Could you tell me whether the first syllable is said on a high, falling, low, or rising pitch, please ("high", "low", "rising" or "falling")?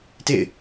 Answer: falling